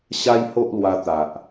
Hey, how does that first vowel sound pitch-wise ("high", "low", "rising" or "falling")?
high